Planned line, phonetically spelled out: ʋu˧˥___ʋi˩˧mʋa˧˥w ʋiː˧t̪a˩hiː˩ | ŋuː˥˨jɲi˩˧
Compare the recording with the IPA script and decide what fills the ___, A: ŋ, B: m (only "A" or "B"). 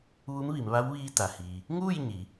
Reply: B